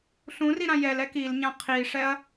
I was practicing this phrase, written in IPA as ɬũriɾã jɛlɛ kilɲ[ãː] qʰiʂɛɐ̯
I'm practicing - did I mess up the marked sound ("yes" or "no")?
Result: yes